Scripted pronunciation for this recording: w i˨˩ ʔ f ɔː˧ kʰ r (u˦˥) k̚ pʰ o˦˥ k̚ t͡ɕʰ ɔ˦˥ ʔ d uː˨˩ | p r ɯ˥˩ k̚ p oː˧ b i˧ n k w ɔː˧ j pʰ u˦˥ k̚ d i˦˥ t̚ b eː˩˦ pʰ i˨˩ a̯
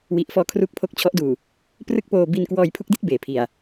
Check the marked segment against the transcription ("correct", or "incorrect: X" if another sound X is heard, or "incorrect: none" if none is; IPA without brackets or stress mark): correct